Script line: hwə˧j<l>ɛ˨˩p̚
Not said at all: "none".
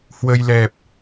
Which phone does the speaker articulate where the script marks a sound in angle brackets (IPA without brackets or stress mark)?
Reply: l